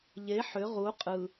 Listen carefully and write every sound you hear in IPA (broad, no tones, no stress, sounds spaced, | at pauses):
ʎ e ħ ʏ ʁ u qʼ ɯ